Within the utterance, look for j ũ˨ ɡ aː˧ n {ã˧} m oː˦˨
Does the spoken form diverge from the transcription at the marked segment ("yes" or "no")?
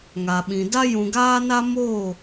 yes